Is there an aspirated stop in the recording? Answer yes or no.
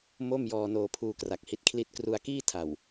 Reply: yes